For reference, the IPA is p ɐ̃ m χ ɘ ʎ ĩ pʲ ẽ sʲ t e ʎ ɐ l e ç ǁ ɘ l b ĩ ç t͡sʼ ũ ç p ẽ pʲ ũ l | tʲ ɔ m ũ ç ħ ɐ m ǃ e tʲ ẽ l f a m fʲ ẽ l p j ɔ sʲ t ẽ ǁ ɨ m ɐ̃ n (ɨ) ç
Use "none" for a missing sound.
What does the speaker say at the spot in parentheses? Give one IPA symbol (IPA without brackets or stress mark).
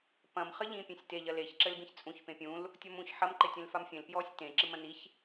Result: i